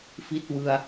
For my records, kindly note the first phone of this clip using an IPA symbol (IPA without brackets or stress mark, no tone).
f